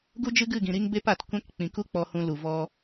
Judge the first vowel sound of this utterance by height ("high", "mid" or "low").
high